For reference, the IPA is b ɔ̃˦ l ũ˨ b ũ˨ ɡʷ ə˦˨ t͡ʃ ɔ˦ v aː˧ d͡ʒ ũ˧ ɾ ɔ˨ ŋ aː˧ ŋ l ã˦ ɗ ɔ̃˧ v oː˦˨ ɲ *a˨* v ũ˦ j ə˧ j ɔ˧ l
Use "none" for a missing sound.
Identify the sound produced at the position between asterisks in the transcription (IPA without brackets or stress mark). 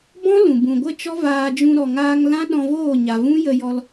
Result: a˨